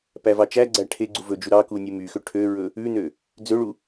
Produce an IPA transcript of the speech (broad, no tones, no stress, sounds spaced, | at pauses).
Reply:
p æ v ɑ t͡ʃ æ ɡ͡ǀ æ ʈʰ e ɡ͡ǀ u v ɵ d͡ʒ u ɾ ɑ k u nʲ ʉ m y x ø ʈʰ ø ɹ ɵ | ʉ n ø | d͡z ø ɭ u